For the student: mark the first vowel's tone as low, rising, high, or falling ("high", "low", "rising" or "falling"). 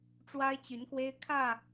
high